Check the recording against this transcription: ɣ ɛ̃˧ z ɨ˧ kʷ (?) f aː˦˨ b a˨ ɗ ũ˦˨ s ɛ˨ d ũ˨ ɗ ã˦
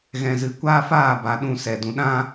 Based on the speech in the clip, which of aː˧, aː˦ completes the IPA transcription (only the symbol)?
aː˦